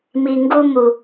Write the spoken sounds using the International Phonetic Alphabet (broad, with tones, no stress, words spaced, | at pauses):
mi˨ŋɡu˦ mu˨